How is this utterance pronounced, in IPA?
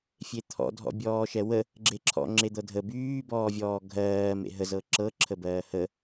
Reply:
fʲ e t̪ʰ ɔ̰ dʱ ɔ̰ bʲ ɔː ʃ ɛ w ə | ɡ͡ǁ e ǁʰ ɔ̰ ŋ͡ǁ e d̪ ɤ dʱ ə b yː b ɔː vʲ ɔː ɡʱ ɜː m ḛ ɦ ə z ɤ ǁ ɤ ǁʰ ə b ɜː h ə

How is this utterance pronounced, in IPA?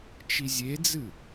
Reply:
t͡ʃ i zʲ e d͡z ɨ

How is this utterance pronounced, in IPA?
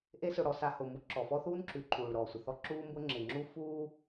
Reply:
ʔ e˦ s ʊ˨ ɽ ɔ˨ s a˨ h ʊ˩ m u˨ ǁ ɔ˩ f ɔ˦ θ uː˥ n ǁ ʉ˩ ǃʰ uː˩ ɭ ɾ ɔː˩ sʷ ɪ˩ θ ɔ˦ ǁ uː˦ m b ʊ˦ ŋ͡ǁ ɪ˩ ŋ͡ǁ u˦ f uː˥

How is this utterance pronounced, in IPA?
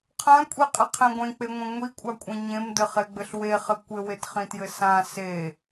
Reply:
qʰ ã kʷʼ i qʼ ɘ qʰ ẽ ɡʷ ẽ k͡p e ŋʷ ĩ ŋʷ i kʷʼ a kʷʼ ẽ ɲ ẽ m d ɘ χ e ɡ͡b ɘ ɬ w e χ ɘ kʷ ɘ w e t χ ĩ t j ɘ s ã s e

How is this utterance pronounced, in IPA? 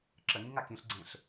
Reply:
ǁ ə ŋ ĩ ŋ a k ĩ ɬ ɡ͡ǀ ẽ ɬ

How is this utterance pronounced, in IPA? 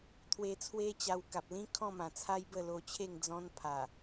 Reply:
t̪ʰ w e˧ t͡sʰ w e˦ t͡ɕ a˧ w k a˨ p̚ l ĩ˦ kʰ ɔ̃˥˧ m ã˨˩ t͡sʰ a˦ j b ə˥˧ l o˧ t͡ɕʰ e˥˧ ŋ d͡z ɔ̃˧ n pʰ a˨˩

